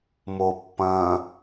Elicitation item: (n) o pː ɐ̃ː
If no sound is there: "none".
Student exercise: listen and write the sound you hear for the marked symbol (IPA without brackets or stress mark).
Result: m